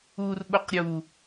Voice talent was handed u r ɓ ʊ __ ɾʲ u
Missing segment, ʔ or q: q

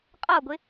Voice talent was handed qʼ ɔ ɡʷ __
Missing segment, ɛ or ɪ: ɪ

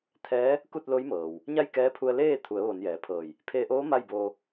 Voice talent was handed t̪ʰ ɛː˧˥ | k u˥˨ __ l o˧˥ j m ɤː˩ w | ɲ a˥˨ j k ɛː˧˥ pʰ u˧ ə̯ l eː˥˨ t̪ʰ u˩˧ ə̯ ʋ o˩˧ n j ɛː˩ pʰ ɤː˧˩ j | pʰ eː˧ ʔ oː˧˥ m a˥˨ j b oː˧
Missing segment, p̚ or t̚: t̚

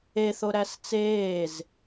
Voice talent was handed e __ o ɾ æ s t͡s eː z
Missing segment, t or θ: θ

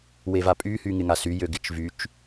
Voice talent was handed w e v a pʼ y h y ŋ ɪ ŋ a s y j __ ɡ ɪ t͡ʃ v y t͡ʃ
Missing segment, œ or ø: ø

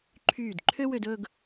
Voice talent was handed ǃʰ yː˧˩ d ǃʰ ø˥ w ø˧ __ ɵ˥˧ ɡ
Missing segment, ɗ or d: d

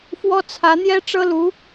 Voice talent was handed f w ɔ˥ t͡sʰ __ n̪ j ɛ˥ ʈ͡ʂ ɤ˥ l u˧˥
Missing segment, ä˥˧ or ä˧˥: ä˧˥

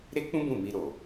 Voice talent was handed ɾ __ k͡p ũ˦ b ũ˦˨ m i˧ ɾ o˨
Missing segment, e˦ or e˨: e˦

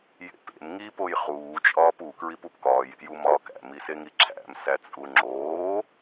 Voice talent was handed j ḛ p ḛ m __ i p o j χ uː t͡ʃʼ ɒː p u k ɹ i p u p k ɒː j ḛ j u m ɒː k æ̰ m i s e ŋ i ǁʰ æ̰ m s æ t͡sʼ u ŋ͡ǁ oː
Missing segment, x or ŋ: ŋ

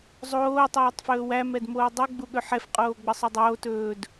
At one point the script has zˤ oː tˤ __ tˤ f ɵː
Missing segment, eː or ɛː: ɛː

